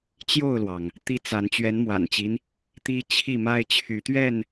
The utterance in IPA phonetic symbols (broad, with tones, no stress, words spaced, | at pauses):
t͡ɕjo˥˨ʊ̯lwɑ˩ŋ | t̪i˦t͡sa˨˦n t͡ɕɥɛ˨˦nmwa̰˨˩nt͡ɕi˦n | t̪i˦t͡ɕʰi˥˨ ma˦ɪ̯t͡ɕʰy˨˦t̪ɥɛ˥˨n